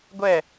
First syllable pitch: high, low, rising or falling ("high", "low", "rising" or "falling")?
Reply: falling